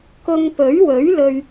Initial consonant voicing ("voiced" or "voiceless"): voiceless